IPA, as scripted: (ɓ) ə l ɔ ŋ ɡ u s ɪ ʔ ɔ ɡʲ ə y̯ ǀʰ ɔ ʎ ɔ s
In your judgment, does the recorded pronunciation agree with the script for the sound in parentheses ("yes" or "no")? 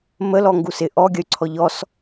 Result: no